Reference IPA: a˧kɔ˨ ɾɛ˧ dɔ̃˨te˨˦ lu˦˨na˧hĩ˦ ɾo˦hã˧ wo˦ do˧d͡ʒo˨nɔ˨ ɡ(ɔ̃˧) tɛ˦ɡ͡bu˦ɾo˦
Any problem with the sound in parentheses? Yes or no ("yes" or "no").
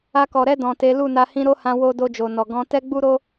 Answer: no